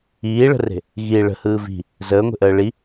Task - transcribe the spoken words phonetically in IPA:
iː ɭ ə̤ r e̤ | ɣ i ɭ ə̤ h ɯː v i̤ | z əː ŋʷ e̤ ʔ əː ɭ i

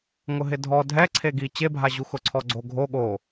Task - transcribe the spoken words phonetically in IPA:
ŋ ʊ ɦ ɪ dʱ ɔ dʱ ɛ ǀʰ e ɡ i t͡ɕ e bʱ a ʑ u x ʊ ǀʰ ɔ ɡ͡ǀ o ɡʱ o ɠ o

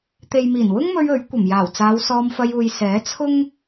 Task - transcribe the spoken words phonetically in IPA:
t̪ e˨ j m iː˨˩ n w ʊ˥ ŋ m ɵ˧ ɥ ɵ˨˥ ɥ kʷ ɐ˨˩ m j aː˨˩ w t͡s aː˨˧ w s ɔː˧ m f ɐ˧ j uː˨ j s ɛː˨˥ t͡sʰ ʊ˥ ŋ

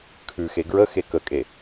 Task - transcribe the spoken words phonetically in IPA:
kʰ ʉ x e ɡ ɹ ə x e k ə kʼ e

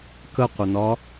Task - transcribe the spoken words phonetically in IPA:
k ə qʷ ə n ɒ

